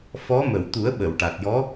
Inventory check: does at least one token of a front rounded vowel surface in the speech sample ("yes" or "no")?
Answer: no